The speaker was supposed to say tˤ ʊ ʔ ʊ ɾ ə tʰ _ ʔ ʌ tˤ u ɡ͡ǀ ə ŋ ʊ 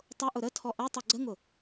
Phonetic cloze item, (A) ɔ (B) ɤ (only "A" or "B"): A